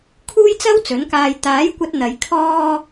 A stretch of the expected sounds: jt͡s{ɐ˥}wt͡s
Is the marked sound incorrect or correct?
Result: correct